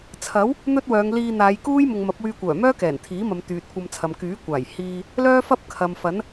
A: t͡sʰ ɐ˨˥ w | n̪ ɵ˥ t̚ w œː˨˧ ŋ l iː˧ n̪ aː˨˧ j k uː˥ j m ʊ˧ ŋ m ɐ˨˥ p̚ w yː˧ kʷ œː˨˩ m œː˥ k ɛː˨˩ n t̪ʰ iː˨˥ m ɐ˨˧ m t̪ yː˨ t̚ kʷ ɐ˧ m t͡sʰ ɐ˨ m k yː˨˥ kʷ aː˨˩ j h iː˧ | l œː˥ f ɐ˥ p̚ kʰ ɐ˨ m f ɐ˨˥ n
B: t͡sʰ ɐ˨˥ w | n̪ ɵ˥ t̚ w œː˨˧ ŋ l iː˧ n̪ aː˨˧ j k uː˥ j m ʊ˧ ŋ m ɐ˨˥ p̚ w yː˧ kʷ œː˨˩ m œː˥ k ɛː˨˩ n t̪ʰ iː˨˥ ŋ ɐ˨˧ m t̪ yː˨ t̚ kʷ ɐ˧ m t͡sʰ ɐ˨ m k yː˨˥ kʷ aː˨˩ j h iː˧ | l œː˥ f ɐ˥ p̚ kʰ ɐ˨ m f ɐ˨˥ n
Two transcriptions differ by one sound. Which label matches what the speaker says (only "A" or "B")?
A